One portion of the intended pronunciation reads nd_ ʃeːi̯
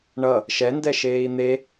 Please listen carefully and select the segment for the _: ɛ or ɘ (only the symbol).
ɛ